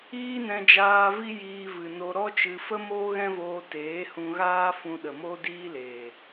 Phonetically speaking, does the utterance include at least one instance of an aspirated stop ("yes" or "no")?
no